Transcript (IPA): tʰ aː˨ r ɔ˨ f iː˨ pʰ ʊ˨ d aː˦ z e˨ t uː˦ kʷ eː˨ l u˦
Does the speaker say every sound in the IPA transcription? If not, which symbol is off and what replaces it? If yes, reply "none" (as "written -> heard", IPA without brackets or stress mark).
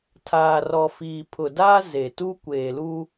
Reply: uː˦ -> u˦